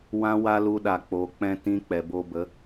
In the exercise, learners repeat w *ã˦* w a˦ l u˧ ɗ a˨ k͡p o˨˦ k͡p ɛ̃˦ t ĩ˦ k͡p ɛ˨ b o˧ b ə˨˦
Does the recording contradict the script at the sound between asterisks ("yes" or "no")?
no